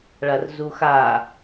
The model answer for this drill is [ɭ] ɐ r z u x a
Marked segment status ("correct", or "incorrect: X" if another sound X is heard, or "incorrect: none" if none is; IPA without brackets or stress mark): correct